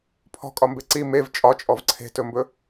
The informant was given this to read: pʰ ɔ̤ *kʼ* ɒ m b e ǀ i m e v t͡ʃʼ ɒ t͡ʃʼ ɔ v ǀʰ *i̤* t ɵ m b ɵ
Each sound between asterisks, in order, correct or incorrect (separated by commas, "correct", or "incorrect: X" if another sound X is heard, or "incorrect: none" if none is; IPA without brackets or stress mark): correct, incorrect: e̤